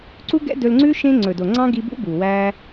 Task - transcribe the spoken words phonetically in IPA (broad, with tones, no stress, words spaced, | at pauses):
ǀu˦ɡɛ̰˦dɵ˧lŋ͡ǀʉ˦ ʃẽ˦ ŋ͡ǀɵ˨do˨ŋ͡ǀɑ̃˦ ɡi˧bṵ˦ bu˨wæː˦